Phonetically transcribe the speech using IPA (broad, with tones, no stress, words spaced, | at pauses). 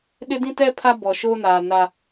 ɗɪ˦dĩ˦tɛ˦ pʰa˦bɔ˨ʃoː˦naː˨ na˦